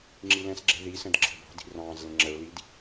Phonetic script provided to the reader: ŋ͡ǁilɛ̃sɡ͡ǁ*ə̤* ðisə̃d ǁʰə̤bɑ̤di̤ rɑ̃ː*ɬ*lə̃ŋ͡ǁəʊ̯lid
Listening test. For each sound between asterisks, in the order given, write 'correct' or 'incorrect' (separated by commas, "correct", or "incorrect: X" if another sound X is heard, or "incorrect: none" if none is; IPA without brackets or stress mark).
incorrect: ɛ̤, incorrect: z